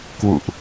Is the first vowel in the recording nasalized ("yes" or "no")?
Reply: no